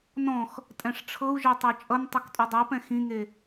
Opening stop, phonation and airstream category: ejective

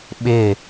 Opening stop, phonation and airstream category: implosive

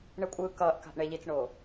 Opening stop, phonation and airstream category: ejective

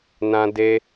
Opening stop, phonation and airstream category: plain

